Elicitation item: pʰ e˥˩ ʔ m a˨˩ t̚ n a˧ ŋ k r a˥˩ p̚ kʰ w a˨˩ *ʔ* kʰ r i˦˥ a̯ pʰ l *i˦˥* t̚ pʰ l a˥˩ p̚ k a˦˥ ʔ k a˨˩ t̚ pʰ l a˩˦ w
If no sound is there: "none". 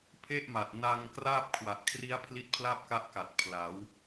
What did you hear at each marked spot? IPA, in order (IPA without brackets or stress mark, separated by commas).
ʔ, i˦˥